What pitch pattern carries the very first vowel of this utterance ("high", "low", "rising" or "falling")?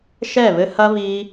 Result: falling